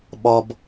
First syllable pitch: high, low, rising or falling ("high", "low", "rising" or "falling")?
low